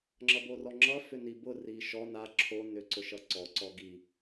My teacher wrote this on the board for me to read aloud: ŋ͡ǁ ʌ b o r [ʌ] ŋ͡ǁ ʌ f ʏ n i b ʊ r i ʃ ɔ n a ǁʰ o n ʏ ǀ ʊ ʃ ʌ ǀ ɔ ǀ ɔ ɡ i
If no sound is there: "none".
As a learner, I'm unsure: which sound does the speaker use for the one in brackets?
ɔ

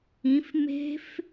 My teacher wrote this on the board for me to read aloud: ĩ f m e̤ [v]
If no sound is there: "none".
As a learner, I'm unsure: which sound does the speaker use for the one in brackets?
f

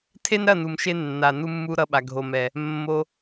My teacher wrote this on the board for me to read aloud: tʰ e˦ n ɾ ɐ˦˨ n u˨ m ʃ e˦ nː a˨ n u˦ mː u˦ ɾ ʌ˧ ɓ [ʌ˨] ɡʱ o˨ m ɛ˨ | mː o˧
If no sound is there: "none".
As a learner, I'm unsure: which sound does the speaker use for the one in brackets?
a˨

